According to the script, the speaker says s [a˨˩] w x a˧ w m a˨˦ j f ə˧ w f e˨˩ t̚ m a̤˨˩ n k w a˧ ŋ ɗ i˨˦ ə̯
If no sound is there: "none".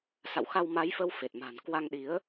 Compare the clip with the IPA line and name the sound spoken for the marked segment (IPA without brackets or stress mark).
a̰˧˨